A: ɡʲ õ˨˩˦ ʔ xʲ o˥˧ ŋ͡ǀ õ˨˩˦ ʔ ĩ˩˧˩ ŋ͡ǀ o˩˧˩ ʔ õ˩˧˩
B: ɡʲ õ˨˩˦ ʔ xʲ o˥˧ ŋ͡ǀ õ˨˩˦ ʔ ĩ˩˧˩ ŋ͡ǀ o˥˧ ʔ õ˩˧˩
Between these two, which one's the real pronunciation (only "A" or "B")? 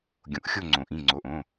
A